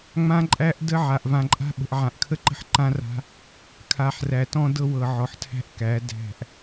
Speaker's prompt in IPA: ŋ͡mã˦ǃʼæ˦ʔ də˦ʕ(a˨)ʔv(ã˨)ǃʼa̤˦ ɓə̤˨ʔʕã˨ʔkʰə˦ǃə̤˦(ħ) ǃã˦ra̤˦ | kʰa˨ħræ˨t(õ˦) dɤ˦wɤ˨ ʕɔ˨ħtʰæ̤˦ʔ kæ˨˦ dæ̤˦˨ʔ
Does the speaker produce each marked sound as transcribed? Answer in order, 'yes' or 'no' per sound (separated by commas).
yes, yes, yes, no